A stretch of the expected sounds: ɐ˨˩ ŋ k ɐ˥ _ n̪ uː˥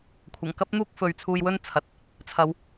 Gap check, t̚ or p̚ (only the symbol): p̚